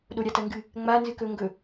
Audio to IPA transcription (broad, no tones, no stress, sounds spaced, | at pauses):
ɗ o ɾʲ a t ɐ ŋ ɡ ɨ | ŋ͡m a n z ɨ k ɵ ŋ ɡ ɵ